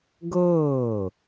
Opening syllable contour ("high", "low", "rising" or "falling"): falling